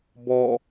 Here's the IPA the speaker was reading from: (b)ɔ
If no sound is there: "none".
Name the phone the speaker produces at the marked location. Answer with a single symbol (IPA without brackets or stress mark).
b